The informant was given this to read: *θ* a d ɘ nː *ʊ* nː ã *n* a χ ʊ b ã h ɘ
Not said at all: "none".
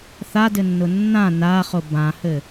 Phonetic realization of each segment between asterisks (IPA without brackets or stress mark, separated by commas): θ, ʊ, n